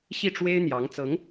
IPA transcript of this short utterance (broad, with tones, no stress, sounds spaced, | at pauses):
ɕ i˥˩ ʈ͡ʂ w e˥ ɪ̯ n̪ j ɑ˧˥ ŋ t͡s ɤ˧˥ ŋ